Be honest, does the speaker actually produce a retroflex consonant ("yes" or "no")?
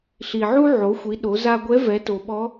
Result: no